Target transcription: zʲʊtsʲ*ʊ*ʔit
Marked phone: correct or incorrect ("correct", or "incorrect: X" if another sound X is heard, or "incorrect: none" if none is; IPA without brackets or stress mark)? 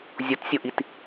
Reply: correct